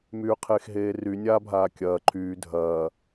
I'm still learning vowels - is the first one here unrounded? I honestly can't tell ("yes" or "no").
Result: no